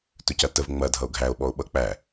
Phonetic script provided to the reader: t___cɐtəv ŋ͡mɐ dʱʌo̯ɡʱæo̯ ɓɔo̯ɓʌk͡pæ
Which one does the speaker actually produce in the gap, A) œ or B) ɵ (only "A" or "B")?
B